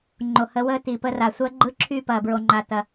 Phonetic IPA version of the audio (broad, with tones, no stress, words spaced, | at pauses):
ŋ͡ǃo˨ hə˨˦wəː˦ ti˨pə˦ra˨ sʷɜ˦ɡ͡ǃɯ˦ ǁʰy˦˨pɐː˨bɹo˨ ŋ͡ǃa˨tɐ˨